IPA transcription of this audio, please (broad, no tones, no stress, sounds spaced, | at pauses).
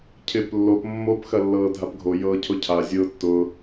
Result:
cʰ ɪː p lː o p mː o p x ɐ lː ɤː dʱ a p ɡʱ o j ɤː cʰ ʊ cʰ a zʲ ʊː tː ʊ